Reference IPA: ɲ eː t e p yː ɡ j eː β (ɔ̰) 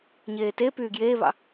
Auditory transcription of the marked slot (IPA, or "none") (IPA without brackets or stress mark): ɑ̰